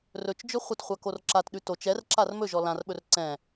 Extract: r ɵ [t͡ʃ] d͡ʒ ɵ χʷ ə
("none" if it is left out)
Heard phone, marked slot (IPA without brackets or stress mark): t͡ʃ